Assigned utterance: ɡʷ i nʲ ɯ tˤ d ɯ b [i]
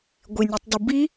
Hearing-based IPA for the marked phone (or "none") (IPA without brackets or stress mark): i